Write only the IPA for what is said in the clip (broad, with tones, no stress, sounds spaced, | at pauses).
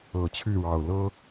ɤ˨˩ t͡ɕʰ y˥˨ ɻ ɑ˨˩ ʊ̯ l ɤ˦